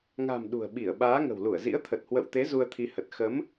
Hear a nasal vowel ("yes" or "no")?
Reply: no